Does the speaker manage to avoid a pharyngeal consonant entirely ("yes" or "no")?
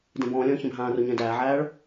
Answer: no